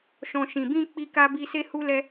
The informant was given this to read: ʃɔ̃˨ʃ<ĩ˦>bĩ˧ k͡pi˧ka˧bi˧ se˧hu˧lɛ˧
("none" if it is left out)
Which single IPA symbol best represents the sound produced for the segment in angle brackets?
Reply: ĩ˨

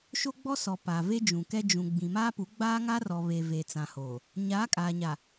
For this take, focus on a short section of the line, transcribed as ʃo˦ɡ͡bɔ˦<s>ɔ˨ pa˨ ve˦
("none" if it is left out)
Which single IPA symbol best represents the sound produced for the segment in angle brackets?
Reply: s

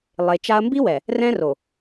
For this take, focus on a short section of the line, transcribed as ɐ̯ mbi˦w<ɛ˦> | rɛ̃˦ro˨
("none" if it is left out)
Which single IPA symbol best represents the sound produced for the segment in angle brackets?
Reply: ɛ˨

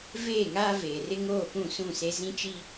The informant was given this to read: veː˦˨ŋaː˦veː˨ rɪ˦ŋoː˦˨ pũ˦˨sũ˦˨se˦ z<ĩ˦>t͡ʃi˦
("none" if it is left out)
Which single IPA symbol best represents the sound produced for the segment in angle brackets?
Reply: ĩ˦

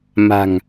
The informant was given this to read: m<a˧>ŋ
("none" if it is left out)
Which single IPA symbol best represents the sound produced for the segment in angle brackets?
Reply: a̤˨˩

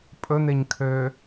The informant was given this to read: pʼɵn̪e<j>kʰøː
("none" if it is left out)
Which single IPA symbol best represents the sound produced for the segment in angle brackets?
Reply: ɲ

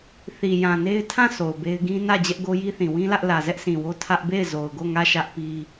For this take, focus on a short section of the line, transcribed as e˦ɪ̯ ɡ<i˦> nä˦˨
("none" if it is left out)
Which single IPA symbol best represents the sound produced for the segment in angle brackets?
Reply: ĩ˦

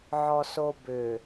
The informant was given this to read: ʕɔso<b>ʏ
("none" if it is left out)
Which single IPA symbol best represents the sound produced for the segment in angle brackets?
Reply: b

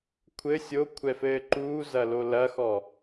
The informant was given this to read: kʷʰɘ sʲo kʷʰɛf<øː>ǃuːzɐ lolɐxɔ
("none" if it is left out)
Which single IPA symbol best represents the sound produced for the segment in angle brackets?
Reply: ɘː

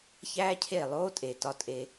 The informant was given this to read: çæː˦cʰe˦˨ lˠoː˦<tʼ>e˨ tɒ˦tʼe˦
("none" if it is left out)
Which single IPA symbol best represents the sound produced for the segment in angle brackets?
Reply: tʼ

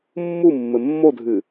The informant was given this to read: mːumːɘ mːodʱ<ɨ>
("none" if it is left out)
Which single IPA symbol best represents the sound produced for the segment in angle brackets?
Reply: ɨ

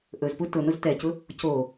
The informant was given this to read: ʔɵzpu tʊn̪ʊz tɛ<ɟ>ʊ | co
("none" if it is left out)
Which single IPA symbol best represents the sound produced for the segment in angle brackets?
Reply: c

